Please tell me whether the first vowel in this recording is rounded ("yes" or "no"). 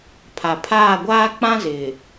no